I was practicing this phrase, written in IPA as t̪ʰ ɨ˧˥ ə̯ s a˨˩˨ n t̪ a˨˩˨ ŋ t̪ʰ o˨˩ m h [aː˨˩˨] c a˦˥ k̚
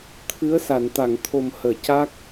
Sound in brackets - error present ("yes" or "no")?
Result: yes